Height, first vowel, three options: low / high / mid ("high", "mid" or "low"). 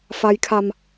low